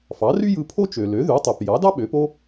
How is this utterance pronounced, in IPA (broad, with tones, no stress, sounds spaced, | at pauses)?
f ɑ˩˥ r y˥ j ɯ˧ pʰ o˥ t͡ʃ ø˩ l ø˩˥ ð y˩˥ tˤ e˩ p j ɑ˩˥ d ɑ˥ ɓ ø˩˥ p o˥